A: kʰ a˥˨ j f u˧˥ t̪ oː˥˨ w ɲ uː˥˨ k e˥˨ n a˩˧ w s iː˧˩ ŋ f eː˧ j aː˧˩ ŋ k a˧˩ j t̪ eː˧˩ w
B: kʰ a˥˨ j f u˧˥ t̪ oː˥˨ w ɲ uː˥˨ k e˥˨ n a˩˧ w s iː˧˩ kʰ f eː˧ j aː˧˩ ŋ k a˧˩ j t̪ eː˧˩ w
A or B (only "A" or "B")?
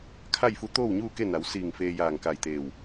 A